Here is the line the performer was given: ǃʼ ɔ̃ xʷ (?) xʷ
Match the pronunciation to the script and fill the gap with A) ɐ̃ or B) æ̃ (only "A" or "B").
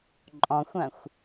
A